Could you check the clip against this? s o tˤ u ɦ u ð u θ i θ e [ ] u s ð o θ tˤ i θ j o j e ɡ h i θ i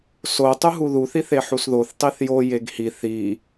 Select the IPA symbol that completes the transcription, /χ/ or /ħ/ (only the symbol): ħ